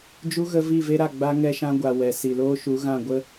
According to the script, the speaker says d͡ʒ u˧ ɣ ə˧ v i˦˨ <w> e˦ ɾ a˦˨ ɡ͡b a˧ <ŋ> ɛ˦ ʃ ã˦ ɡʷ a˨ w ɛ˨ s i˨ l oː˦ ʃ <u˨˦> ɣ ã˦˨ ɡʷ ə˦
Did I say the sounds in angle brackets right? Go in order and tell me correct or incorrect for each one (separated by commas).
incorrect, correct, correct